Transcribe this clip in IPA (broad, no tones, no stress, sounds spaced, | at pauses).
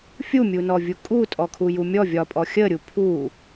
fʲ u mʲ u n ɔ vʲ u kʼ u tʼ ɔ kʰ u j u mʲ ɔ vʲ ɒ pʼ ɔ xʲ ə ɾʲ u pʰ u